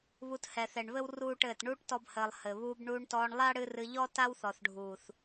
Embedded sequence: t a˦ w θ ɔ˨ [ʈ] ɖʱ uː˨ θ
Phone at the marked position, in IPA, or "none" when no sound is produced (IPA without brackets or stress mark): θ